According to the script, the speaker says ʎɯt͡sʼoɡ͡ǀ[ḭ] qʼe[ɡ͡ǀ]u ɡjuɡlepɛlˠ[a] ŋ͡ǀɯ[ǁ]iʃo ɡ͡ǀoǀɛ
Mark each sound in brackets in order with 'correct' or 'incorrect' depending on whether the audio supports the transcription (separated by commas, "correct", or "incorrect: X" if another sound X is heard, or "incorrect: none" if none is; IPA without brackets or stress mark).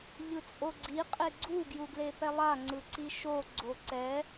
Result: incorrect: i, correct, correct, incorrect: ǀ